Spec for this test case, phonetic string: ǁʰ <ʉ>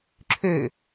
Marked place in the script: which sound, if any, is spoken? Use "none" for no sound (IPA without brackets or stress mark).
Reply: ø